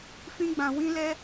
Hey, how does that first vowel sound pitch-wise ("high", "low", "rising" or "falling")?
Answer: high